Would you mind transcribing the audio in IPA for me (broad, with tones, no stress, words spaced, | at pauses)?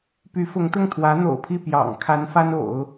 py˧˥fʊ˧˥ŋt̪ʊ˥˩ŋ t̪ʰwä˧˥n̪o̰˨˩ʊ̯pʰi˥˩ pjɑ̰˨˩ŋkʰa˧˥n fa˥no̰˨˩˦ʊ̯